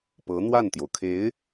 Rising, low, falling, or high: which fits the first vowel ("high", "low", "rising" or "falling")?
rising